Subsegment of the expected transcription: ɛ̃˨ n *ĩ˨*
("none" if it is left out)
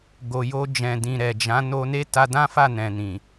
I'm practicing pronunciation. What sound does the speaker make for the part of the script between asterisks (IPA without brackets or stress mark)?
ĩ˨